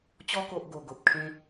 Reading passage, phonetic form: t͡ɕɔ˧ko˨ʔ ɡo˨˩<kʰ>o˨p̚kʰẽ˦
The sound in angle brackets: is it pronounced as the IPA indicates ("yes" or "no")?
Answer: no